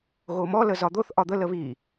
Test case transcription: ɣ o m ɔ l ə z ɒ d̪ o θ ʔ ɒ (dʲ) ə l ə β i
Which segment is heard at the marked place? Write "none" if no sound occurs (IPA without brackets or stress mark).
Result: d̪